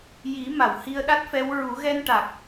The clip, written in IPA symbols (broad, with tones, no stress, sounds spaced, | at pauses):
j i˨˩˦ m a˨˩˨ w h i˧ ə̯ ɗ a˦˥ t̚ f ɛ˧˥ w ɹ u˨˩˦ ɣ ɛ˧ n ʈ a˨˩ k̚